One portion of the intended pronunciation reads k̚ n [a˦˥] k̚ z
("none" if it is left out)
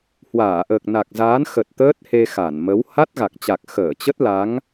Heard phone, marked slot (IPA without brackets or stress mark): a˨˩